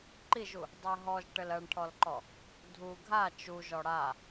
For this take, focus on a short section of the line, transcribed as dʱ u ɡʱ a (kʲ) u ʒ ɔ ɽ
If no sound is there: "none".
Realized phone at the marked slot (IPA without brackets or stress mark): t͡ʃ